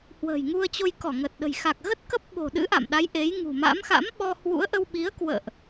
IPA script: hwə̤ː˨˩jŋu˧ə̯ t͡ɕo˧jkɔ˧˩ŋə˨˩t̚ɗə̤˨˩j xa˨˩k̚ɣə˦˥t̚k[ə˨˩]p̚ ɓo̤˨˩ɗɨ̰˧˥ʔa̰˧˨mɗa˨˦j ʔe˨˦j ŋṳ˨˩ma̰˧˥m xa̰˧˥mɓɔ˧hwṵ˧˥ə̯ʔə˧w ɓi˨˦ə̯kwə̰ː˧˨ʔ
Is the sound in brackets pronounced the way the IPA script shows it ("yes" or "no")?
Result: no